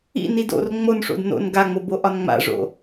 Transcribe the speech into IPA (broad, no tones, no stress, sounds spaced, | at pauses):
ḭ n i d o̰ r ŋ͡m o n ʂ o̰ d n o̰ n ɡ a ŋ͡m o b o ʔ ɒ n ŋ͡m a̰ ʐ o̰